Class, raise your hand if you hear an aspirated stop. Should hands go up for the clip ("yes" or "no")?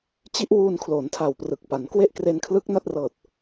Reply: yes